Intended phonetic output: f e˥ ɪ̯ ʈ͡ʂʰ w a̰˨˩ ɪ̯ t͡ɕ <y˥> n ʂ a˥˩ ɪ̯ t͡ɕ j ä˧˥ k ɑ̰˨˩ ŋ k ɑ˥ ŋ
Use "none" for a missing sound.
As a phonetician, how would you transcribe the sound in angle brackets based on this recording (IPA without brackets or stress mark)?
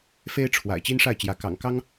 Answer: i˥